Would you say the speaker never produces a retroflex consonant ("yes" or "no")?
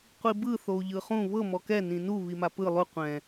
yes